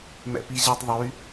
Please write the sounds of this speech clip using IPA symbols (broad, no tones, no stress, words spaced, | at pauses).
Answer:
mɛ̰piʑɛtˤðˤy